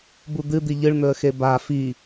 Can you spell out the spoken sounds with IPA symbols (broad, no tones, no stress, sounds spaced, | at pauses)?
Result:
b u d̪ ɨ d̪ i ʎ ɨ ɭ n̪ ɵ ə̯ x e b a f i